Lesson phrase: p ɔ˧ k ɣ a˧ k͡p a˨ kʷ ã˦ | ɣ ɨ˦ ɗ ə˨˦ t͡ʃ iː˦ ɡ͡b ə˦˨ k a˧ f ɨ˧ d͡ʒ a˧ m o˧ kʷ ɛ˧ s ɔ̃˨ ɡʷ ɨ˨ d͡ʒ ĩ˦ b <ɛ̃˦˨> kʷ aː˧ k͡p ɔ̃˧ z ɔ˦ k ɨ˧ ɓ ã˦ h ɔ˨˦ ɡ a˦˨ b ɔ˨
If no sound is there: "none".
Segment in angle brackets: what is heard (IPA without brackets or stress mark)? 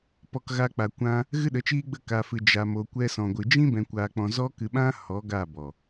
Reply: ɛ̃˧